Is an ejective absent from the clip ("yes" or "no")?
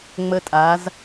no